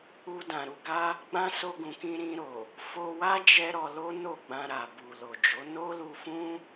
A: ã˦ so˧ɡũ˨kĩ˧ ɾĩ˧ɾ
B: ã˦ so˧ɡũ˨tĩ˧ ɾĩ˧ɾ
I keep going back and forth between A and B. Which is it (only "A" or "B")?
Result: A